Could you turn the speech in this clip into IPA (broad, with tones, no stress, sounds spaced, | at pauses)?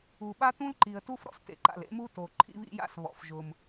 u˩ ɓ a˦ t ũ˦ l ǃ i˩ ə̯ t u˦ f ɾ ɔ̰˦ s t ḛ˩ ǃ a̰˩ l ḛ˦ m u˦ t o˩ ǃʰ ḭ˦ β ḭ˦ j a̰˦ s β ɔ̰˩ f ʒ ʊ˩ m